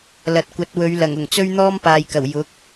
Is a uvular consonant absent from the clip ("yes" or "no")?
yes